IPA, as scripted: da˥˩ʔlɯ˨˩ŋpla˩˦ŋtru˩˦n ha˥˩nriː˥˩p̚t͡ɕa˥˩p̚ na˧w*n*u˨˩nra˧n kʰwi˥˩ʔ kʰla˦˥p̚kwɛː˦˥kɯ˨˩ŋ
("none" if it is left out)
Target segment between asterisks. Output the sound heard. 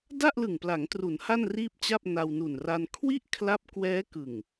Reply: n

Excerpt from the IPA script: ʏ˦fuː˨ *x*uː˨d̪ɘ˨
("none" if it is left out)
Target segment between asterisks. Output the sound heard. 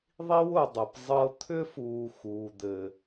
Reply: x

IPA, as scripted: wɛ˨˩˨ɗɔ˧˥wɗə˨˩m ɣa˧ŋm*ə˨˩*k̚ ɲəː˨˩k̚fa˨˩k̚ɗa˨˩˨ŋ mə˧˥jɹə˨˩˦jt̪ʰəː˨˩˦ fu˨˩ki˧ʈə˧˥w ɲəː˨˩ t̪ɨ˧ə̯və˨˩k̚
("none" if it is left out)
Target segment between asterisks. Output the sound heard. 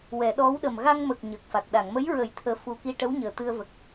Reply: ə˨˩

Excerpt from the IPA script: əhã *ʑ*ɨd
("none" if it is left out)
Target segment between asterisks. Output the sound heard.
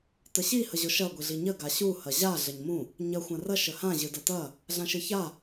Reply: ʑ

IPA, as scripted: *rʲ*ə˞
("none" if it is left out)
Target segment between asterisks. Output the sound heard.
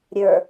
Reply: ɾʲ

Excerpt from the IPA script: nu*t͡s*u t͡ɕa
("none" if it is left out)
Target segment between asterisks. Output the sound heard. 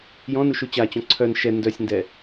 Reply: ʃ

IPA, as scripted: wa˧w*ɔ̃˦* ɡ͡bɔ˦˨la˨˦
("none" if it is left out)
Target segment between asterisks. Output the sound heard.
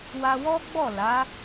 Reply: ɔ˦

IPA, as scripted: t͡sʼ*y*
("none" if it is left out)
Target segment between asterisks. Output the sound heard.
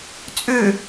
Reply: ʏ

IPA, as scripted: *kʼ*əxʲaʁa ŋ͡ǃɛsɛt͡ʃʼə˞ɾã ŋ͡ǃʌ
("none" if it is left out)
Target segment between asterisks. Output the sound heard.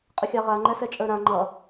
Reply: qʼ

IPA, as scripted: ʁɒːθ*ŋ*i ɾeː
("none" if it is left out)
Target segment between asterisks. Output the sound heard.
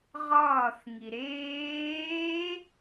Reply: ŋ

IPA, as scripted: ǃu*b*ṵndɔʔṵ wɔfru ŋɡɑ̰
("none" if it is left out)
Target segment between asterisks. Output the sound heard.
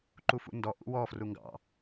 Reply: f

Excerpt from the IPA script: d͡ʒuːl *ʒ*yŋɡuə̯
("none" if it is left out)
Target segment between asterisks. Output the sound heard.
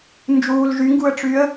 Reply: ʒ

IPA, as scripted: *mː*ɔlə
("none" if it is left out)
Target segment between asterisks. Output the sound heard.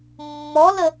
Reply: mː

